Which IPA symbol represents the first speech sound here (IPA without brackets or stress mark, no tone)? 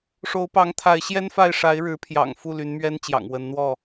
ʂ